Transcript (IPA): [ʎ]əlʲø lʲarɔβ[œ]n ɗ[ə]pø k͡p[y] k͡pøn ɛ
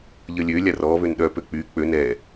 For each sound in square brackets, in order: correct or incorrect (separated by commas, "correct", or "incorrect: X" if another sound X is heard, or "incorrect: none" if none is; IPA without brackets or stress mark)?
correct, incorrect: ø, incorrect: œ, correct